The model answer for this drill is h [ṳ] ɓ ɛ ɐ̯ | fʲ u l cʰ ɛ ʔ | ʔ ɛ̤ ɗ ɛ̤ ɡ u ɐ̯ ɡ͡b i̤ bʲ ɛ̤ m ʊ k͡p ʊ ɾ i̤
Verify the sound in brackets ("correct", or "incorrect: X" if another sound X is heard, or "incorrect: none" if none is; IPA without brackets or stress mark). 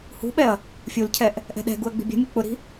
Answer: correct